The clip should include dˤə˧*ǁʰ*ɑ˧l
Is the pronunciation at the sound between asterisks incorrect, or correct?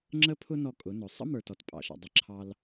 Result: correct